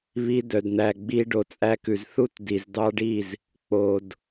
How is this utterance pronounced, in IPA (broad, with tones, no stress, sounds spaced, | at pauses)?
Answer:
β i˧ d œ˨ d n̪ æ˨ ɡ͡b i˧ ɖ o˨ t͡sʼ æ˧ k ʉ˨ z θ u˦ t d i˨ z d ɑ˧ ɖ i˦˨ z | k͡p o˨ d